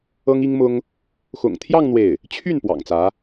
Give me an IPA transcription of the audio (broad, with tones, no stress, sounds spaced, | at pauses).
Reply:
ɤ˥ ŋ i˥ ŋ m ʊ˥ ŋ | x ʊ̰˨˩ ŋ t̪ʰ j ɑ˥˧ ŋ n̪ w e˥˩ ɪ̯ | t͡ɕʰ y˥˩ n p w ɑ̰˨˩ ŋ t͡s ä˧˥